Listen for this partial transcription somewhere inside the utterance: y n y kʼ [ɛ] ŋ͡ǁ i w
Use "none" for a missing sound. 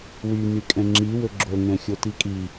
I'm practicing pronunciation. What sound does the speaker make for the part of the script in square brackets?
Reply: ɛ̃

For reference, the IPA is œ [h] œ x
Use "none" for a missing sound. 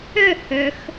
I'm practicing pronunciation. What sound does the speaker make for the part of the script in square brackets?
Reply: h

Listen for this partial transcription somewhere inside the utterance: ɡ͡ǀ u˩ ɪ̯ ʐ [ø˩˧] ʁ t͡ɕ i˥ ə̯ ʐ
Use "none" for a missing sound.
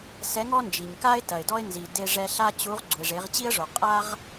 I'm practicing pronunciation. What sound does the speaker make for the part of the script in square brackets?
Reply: e˩˧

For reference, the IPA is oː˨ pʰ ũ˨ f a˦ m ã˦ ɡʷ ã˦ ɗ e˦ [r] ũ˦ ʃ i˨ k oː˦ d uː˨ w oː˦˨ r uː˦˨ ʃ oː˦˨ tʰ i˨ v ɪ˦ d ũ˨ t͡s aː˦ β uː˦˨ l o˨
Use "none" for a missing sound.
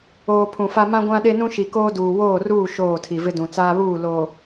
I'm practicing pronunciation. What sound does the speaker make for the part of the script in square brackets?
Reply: n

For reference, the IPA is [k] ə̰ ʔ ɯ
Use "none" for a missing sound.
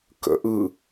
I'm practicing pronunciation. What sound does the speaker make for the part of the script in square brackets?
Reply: k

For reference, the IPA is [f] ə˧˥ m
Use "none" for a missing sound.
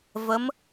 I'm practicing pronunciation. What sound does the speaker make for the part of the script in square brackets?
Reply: v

